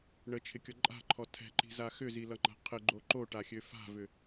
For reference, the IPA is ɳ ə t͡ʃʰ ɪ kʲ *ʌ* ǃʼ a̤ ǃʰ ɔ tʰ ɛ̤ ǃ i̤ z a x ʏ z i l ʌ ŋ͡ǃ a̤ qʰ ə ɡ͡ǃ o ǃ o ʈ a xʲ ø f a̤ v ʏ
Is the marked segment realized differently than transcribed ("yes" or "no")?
no